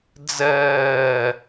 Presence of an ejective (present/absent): absent